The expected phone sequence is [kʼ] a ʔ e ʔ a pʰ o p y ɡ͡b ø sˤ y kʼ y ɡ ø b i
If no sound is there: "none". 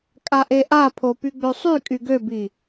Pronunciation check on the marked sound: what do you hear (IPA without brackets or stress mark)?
kʼ